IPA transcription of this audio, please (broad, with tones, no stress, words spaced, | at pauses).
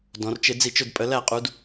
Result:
dɔ̃˩˧rt͡ʃɪ˧˩˧ d͡zi˧˩˧t͡ʃʊ˩˧d pʼə˩˧læ˧˩˧qʼu˩˧d